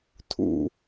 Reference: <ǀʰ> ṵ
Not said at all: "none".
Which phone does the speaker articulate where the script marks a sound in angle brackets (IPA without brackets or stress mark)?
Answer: tʰ